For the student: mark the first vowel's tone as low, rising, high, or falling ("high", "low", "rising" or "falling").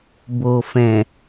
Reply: low